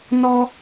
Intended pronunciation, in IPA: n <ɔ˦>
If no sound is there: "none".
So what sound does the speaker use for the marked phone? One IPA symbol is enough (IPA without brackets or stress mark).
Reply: ɔ˦